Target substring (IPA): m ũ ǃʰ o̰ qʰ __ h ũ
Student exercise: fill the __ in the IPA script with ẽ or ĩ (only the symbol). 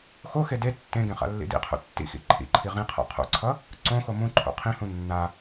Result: ĩ